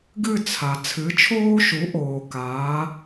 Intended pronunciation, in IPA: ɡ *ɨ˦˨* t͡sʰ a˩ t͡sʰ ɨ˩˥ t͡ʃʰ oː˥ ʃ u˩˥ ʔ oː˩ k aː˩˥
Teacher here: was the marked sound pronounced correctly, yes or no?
yes